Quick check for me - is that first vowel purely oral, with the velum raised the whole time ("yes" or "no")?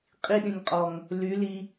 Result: yes